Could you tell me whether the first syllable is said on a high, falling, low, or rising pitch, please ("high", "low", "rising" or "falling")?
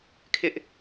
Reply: high